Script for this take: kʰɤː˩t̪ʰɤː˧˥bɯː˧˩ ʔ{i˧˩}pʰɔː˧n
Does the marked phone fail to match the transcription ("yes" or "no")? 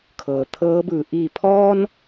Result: no